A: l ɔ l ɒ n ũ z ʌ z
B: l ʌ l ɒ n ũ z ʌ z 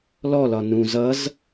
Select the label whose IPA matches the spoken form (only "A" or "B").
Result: A